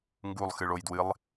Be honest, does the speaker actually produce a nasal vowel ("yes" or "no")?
no